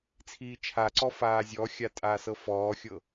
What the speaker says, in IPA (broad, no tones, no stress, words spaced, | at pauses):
t͡sʰiːt͡ʃʰaǀɔ faːzʲɔxʲa tʼaːsɤfɔːxʲɤ